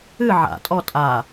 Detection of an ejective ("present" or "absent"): present